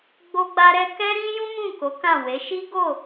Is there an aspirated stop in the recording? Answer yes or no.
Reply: no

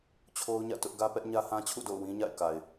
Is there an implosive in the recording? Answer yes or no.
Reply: no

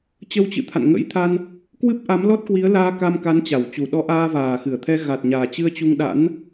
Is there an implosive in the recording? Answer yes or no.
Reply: yes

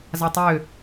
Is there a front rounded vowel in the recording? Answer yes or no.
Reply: yes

